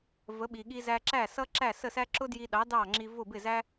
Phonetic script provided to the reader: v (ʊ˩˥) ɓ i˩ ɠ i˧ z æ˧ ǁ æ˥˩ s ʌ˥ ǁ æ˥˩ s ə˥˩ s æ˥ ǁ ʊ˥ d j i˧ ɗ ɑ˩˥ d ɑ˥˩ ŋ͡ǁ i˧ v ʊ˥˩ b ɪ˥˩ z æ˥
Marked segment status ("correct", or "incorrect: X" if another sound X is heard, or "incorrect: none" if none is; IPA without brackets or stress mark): incorrect: ə˩˥